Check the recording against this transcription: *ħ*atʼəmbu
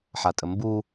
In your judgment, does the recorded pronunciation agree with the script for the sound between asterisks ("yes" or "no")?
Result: yes